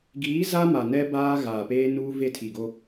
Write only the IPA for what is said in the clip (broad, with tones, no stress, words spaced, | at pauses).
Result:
ɡiː˨˦ za˦ma˨nɛ˦ baː˦ ɣaː˨peː˦nuː˦ ve˦˨tʰi˨ɡo˦